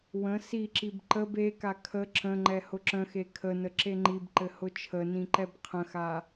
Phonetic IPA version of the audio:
w ə̃ s i ǁ i b ǃ ə b e k a kʰ ə ǁ ə̃ ŋ͡ǃ ɛ h ʊ ǁ ə̃ x e kʰ ə n ə ǁ e ŋ͡ǃ i b ǃ ɘ h ʊ t͡ʃʰ ə n ĩ ǃ ɛ b qʰ ə̃ x a

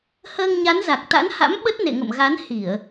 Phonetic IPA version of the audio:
h əː˧ ŋ ɲ a˨˦ n z a˨˩ k̚ t̪ a̰˧˥ n h a̰˧˥ m ɓ ə˦˥ t̚ n ḛ˧˨ ŋ ə̰˧˨ m ɣ a˨˦ n h i˧˩˨ ə̯

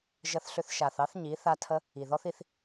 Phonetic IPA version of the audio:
ʒ ə˧ θ ɬ ʏ˧ θ ʃ a˨ θ ɑ˦ θ ɲ i˨˦ θ a˦ tʰ ə˦ | i˨ ð ɔ˦ θ i˧ θ

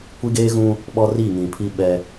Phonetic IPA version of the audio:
kʷ i˦ ɡ eː˦ ɣ ũ˦ | ɓ ɔ˦ r i˦˨ ŋ ĩ˨ pʰ i˦ ɓ ɛ˦

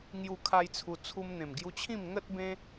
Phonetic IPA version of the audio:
ŋ j u˦ kʰ a˦ j t͡sʰ u˧ t͡sʰ u˧ m n̪ ẽ˨˩ m ɡ j u˧ t͡ɕʰ ĩ˥˧ m ŋ ə˦ t̚ b ẽ˦

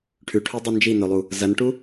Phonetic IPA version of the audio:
ʈʰ ʉ ʈʰ o dˤ u n d͡ʒ i n̪ ɵ lˠ u | z ɐ n ʈ u

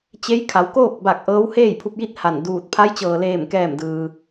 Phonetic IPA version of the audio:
t͡ɕ e˧˥ j kʰ a˩˧ w k oː˥˨ k̚ b a˧˩ k̚ ʔ ɤː˧˥ w h eː˥˨ j pʰ u˧ p̚ j i˥˨ t̚ h a˧˩ n d uː˧˩ t̚ pʰ a˧˥ j t͡ɕ ɤː˩ l eː˧˩ m k ɛː˧˩ m d ɯː˩

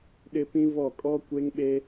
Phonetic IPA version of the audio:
ɗ ɪ˦ p ĩ˦ v ɔ˦˨ kʼ ɔ˦ kʷ e˦ ŋ ɓ e˦

